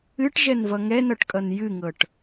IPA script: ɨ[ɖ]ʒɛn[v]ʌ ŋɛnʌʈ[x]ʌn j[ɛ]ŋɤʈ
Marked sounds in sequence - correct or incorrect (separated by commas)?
incorrect, correct, incorrect, incorrect